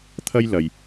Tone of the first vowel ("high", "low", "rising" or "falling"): high